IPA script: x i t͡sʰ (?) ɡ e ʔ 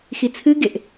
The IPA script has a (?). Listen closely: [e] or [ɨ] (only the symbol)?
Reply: ɨ